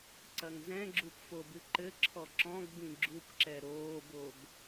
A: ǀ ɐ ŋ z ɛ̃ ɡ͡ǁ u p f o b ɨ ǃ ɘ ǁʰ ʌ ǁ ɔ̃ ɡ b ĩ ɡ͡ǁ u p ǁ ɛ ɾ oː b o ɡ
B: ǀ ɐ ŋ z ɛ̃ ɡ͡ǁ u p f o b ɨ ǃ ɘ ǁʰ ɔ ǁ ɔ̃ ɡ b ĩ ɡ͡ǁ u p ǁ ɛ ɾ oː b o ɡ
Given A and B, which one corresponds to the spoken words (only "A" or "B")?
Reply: B